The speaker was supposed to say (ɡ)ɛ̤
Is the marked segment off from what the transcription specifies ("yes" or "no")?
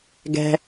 no